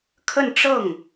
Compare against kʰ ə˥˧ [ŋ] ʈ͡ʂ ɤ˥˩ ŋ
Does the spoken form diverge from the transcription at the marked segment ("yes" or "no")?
yes